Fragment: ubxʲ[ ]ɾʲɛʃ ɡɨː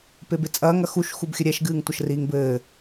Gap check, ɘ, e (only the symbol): ɘ